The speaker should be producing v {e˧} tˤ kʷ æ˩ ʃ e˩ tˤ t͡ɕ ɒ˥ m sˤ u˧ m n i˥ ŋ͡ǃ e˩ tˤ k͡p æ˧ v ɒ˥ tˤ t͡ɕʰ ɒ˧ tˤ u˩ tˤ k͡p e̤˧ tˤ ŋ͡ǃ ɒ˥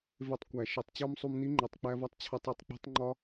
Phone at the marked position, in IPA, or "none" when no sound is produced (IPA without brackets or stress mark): e˧